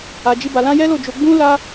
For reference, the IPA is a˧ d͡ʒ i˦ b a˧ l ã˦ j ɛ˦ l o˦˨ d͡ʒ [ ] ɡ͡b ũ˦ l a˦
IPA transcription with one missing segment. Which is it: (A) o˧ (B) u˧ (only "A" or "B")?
A